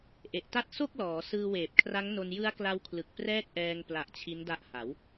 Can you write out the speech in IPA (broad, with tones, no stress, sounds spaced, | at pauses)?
ʔ e˨˩ ʔ t a˥˩ t̚ s o˥˩ k̚ l ɔː˩˦ s ɯː˧ w eː˨˩ p̚ kʰ r a˦˥ ŋ n o˧ n j ɯ˦˥ a̯ k l a˦˥ w kʰ l ɯ˨˩ k̚ p r ɛː˥˩ k̚ ʔ ɛː˧ ŋ p l a˨˩ ʔ t͡ɕʰ i˦˥ n d a˦˥ ʔ h a˩˦ w